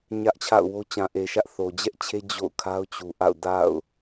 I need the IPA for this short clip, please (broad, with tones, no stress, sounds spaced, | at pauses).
ɲ ä˦ ʔ t͡ɕʰ a̰˦˨ ʊ̯ w o˦ t͡ɕ ã˨ ʔ e˨ ʃ ä˦ ʔ θ o˨ d͡ʑ ɛ˦ ʔ t͡ɕʰ e˦ d͡ʑ o̰˦˨ ʊ̯ kʰ a˦ ʊ̯ t͡ɕ u˨ ʔ a̰˦˨ ʊ̯ d a̰˦˨ ʊ̯